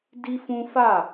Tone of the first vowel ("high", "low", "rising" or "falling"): high